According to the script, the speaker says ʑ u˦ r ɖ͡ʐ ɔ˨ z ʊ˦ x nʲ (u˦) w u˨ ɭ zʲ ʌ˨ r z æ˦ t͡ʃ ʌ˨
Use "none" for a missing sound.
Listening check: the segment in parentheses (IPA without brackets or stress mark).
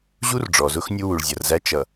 u˦